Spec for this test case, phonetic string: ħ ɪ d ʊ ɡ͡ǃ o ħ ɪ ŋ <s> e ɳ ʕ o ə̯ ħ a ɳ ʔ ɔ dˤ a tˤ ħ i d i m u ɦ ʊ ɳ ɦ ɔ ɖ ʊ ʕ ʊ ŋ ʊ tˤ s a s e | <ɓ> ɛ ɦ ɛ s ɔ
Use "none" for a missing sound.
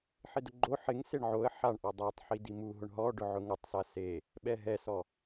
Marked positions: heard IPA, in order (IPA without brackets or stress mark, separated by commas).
s, ɓ